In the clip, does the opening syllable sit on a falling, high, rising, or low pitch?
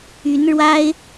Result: rising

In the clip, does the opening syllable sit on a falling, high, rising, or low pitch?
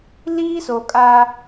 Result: high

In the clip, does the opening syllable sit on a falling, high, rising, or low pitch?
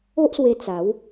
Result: high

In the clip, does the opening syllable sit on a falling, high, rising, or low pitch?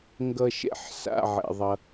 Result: low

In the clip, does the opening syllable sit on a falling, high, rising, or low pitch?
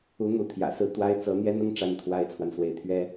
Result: rising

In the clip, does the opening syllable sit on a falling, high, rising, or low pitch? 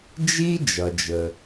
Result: high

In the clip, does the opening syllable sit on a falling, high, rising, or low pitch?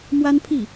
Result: high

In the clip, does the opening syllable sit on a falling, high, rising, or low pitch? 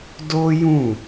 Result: high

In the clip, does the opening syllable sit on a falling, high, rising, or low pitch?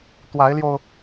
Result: rising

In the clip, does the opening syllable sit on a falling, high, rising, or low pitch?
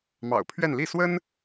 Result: low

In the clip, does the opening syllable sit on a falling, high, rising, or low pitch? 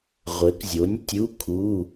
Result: rising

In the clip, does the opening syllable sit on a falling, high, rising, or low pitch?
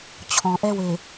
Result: low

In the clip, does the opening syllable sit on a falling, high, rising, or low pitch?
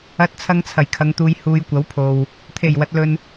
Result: rising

